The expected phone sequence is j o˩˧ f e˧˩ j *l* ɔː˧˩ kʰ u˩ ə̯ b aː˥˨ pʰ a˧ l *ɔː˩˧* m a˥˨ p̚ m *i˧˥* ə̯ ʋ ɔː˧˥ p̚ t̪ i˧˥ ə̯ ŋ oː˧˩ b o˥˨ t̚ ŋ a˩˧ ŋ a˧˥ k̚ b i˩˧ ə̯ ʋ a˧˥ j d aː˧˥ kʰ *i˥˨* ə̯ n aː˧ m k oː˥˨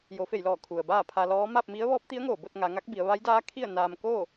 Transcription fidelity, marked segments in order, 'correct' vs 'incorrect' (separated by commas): correct, incorrect, correct, correct